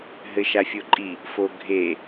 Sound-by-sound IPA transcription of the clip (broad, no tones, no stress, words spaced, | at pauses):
ɦɘʃafʲoǃʼi | foɡʱe